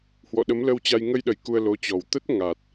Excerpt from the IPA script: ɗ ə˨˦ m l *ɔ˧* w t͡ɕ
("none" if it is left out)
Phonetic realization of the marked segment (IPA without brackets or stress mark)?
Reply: ə˧